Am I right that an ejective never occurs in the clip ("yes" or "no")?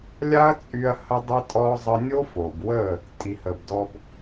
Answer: no